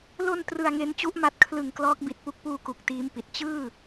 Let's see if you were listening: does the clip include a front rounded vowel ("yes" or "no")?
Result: no